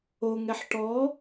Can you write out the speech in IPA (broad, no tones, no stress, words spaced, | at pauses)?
oŋɛħ ʈɔ